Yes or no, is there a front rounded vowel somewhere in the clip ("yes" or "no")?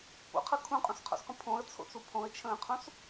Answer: no